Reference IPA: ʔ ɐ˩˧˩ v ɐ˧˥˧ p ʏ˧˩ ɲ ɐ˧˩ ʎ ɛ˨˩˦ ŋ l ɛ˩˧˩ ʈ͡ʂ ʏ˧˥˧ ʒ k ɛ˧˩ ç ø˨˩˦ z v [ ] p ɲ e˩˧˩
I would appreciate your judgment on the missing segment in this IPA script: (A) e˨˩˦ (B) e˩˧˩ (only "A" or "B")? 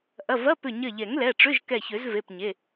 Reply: B